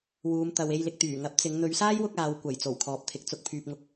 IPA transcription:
wuː˨˧mt̪ɐ˨w e˧jlɪ˨k̚t̪yː˨˩ŋɐ˨˥p̚ t͡sɪ˨˧ŋ n̪ɵ˨˧ɥsaː˥jwʊ˧k̚ aː˨wkʷɐ˨˩j t͡so˨˩wkʰɔː˨˥p̚t̪ʰɪ˨k̚ t͡sʊ˧k̚pʰyː˨p̚ŋʊ˧k̚

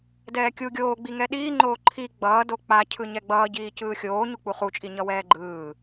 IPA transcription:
dɛːkʲu ɡʲoːɡ͡bi ŋɛɗiːŋ͡ǃoː ǃʰi ɡ͡bʌːdo k͡pa cʰɯɲɛɡ͡bʌː ɟiːcɯːxʲoː ɲuk͡puχut͡ʃʼi ɲʌwɛːɡ͡ǃɯː

